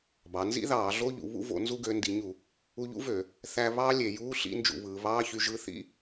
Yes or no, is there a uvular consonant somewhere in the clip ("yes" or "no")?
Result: no